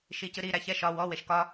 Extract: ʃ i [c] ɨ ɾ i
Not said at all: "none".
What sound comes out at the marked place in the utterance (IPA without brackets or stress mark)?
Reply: c